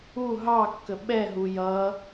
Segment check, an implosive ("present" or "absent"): present